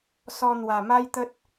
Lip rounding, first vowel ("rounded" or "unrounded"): rounded